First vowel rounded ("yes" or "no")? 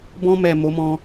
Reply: yes